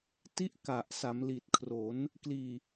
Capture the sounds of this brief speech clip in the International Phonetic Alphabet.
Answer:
ti˦˥ʔ ka˨˩ʔ sa˩˦mli˨˩t̚ kʰro˩˦n | kliː˨˩

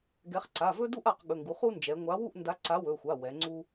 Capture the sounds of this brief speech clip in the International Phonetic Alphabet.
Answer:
ɡɛ˩˧χ ǀa˩˧˩vɵ˦ du˦ʔ a˩˧q ɠɵ˩˧˩ŋɡu˩˧ χu˦ nd͡ʒɛ˩˧ŋʷa˨˥ wu˥˨ʔnda˨˥ǀa˨˥ wɵ˩˧˩xʷa˩˧˩ wɛ˩˧ŋ͡ǀu˦

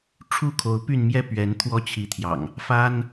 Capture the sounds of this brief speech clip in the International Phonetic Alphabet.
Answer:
ʈ͡ʂʰu˦kʰo˨˦ʊ̯py˥˨nmjɛ˦ pɥɛ˨˦nt̪ʰwɔ˦t͡ɕʰi˨˦t̪ʰjɑ̰˨˩ŋ | fa˦n

